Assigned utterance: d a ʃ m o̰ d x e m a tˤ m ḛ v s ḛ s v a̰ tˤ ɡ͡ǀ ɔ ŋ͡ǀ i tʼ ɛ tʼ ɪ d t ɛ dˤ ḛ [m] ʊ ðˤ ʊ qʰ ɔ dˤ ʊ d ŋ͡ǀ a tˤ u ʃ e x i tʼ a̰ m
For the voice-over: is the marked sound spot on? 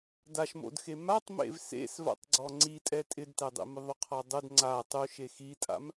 yes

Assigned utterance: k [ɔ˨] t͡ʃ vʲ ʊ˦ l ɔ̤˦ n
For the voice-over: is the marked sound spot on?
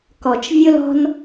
yes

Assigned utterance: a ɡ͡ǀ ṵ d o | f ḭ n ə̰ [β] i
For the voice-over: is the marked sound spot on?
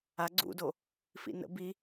no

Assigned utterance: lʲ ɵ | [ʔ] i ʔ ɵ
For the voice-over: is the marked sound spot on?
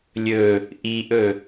yes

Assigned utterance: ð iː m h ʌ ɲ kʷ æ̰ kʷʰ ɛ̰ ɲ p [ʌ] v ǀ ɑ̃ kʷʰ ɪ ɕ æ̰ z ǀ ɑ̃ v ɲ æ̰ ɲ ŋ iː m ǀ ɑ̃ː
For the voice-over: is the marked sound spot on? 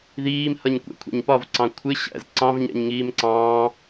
no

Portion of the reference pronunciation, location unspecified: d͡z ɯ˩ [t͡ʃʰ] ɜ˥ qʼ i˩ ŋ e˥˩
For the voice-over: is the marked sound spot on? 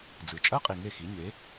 no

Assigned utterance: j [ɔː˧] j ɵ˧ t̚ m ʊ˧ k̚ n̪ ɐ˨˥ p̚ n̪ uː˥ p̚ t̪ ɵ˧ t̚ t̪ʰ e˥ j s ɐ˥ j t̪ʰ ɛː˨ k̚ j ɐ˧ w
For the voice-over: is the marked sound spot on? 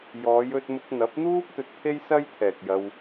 no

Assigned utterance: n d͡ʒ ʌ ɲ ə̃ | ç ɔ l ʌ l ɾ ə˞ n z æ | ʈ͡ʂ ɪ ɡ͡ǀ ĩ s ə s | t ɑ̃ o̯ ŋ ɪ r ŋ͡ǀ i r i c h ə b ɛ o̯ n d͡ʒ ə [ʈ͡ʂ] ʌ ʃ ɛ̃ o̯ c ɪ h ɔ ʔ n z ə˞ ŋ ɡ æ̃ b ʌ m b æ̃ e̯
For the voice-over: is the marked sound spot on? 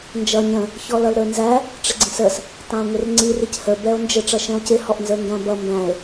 yes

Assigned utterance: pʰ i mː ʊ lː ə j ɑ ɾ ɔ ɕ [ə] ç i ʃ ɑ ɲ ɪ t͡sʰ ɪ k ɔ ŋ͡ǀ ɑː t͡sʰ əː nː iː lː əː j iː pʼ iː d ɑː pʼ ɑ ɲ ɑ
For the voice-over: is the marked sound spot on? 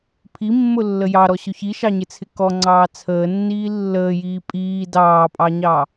no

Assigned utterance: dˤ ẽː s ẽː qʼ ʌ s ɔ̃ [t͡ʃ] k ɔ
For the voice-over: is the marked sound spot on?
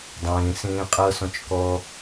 yes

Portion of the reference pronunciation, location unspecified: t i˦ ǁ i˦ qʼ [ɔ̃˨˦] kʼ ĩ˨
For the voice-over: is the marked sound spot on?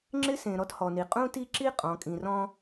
yes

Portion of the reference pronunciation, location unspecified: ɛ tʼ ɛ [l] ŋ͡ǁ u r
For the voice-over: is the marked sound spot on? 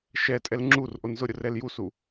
yes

